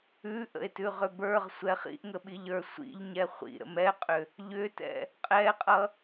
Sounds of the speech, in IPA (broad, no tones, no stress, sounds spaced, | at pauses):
ʉ ʔ ə̰ e̯ t ʉ ʁ ʏ b ə˞ ʁ sʷ ɛ χ ḭ ʔ ŋ ə ɓ i ʎ ə˞ sʷ ḭ ʎ ɲ ɛ χʷ ḭ ɾ ə̰ m ɛ qʼ ʏ | ʎ ʏ t ɛ̰ | qʼ ɛ qʼ ʌ